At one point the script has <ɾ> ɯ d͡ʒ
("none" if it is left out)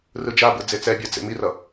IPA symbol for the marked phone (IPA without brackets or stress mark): r